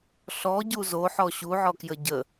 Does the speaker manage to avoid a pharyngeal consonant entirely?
no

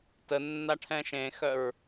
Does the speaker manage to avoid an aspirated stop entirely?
no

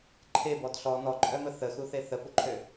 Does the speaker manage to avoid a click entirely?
no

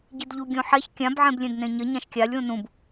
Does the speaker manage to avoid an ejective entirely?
yes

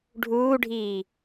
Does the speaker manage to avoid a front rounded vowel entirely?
yes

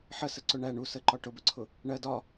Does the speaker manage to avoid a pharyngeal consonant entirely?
no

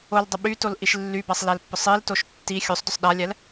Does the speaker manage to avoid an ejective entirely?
yes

